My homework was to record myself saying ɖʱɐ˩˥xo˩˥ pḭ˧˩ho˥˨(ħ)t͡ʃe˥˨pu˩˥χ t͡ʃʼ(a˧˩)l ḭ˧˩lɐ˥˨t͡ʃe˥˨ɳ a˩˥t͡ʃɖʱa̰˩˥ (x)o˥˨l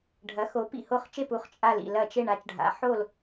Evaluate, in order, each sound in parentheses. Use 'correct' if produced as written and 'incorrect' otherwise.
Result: incorrect, correct, incorrect

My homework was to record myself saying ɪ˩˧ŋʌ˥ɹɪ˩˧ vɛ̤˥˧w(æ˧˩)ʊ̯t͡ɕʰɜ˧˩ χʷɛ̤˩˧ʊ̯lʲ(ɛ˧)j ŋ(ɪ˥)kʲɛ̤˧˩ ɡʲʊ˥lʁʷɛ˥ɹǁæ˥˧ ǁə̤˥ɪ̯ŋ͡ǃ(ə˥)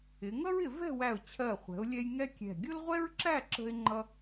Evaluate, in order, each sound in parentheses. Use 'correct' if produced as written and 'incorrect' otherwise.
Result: correct, correct, incorrect, incorrect

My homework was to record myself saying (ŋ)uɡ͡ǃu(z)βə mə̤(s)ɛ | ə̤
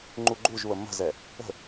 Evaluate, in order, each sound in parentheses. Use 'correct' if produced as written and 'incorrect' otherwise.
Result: incorrect, incorrect, incorrect

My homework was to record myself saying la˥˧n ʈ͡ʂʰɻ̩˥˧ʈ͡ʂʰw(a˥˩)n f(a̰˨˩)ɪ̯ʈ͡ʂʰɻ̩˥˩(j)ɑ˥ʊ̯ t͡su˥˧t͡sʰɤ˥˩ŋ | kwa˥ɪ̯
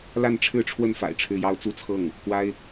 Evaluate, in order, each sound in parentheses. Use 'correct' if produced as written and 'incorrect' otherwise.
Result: incorrect, correct, correct

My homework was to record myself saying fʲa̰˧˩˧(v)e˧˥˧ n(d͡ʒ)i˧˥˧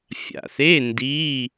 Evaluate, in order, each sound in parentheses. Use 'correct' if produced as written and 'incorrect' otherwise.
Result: incorrect, incorrect

